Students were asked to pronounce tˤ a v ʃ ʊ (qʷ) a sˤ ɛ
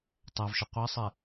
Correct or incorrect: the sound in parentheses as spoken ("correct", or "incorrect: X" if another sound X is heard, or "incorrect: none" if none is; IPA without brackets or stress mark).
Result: correct